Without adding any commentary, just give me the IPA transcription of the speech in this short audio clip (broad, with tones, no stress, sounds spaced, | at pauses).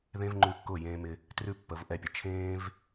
ð ẽ˦ v ŋ͡ǃ ʉ˧ kː ʊː˦˨ j ẽː˧ m ɪ˧ | t r ʉ˦ pː ə˨˦ v ʔ ɛ˧ pʲ ə˨ t͡ʃʰ ẽː˦ v